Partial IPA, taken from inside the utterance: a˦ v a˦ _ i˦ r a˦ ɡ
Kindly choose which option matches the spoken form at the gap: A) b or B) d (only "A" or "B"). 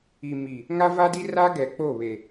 B